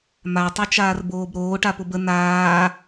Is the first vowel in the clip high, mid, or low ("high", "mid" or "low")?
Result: low